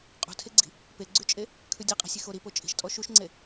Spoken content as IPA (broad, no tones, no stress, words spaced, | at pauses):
qʼṳtʰeɡ͡ǀi̤ | peɡ͡ǀyt͡ʃʼe | kʰʉdʲeqʼi̤sʲex oɾipo t͡ʃʼi̤ʃtʼɔ ʃuʃŋ͡ǀe